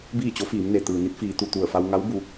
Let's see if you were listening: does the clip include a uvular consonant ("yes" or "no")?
no